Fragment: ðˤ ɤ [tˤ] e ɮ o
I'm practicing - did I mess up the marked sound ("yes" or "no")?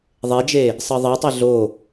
no